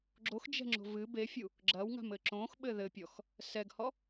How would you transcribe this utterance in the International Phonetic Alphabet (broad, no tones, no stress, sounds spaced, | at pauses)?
ɡ͡ǁ o x d͡ʒ ɛ̤ ŋ͡ǁ o̤ v ɨ b e fʲ u | ɡ͡ǁ ɐ w ŋ a̤ m ɘ ǁ õ x ɓ ɘ ð ɘ pʲ ɔ x | s ɛ ɡ h ɔ